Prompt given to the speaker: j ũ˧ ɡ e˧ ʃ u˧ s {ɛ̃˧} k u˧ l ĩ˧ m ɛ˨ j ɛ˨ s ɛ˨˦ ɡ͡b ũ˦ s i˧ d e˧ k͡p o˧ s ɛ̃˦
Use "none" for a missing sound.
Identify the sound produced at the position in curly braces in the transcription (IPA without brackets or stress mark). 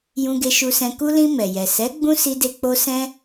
ɛ̃˧